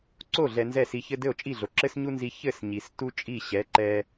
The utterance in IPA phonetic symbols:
ǀ o˥˩ ɮ ɛ˧ n z ɛ˥˩ s i˧ ç ɘ˥ d ɘ˥˩ o̯ t͡ʃʼ i˥˩ ɮ o˩ ǁ ɘ˥ s ɲ u˥ n z i˧ ç ɘ˥˩ s ɲ i˩ s t u˥ t͡ʃʼ i˥˩ ɕ ɛ˩˥ ǃ ɛ˧

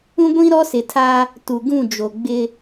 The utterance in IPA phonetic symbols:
ũ˦ ɡʷ ĩ˦ ɾ ɔ˦ s ɪ˨ tʰ a˦ | t u˨ ɡ ũ˦˨ d͡ʒ o˨ ɡ͡b ɪ˦

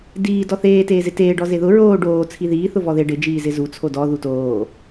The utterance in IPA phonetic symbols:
d iː d ɔ θ eː t eː z ɪ t eː ɖ ɔ z e ð ʊ ɹ oː ɖ oː t͡sʰ i ð iː θ ʊ v ɔ ð e ɖ ɪ d͡ʒ iː z ɪ z u t͡sʰ o d ɔ ð u t oː

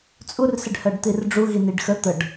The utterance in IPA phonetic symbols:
t͡sʼ u r s ɪ ɖ h ɜ ɖ t̪ i r ɖ͡ʐ u ɣ i n i ɖ x ə t̪ ə ɖ

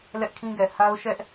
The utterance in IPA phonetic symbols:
l ɛ˦ ʔ kʰ ĩ˦ ɡ ɛ˨ h a˦ ʊ̯ ʃ ɛ˦ ʔ

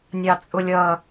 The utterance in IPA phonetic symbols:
nʲ ɑ t͡sʼ ʊ lʲ ʌ

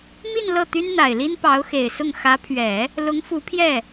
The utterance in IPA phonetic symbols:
m i˥˧ n l ɤ˥˩ t̪ y˥ n n̪ a˨˩ ɪ̯ l i˥ n p ɑ˧˥ ʊ̯ x e˨˩ ɪ̯ s ʊ˥˩ ŋ x ä˧˥ pʰ ɥ ɛ˨˩˦ | l ʊ˧˥ ŋ f u˧˥ pʰ j ɛ˥˩

